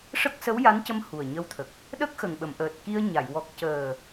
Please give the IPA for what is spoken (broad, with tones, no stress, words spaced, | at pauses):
ʂə˦˥k̚sə˧˥wja˧˥ncə˧m hu˨˩ə̯ɲə˧˥wt̪ʰə˨˩k̚ | ɗə˦˥k̚xə˨˩ŋɓə˨˩˨mʔəː˨˩t̚ ki˧ə̯ɲa˨˩˨j wɔ˨˩k̚cəː˨˩